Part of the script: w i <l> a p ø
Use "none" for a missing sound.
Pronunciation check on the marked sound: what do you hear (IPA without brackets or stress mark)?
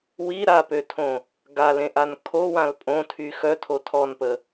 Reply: ɾ